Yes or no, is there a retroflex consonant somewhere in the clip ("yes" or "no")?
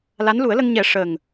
yes